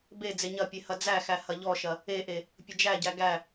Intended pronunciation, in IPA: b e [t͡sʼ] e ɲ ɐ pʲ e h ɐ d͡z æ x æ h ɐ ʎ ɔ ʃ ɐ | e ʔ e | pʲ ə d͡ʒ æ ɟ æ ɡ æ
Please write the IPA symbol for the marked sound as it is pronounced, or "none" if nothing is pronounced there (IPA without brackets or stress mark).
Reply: d͡z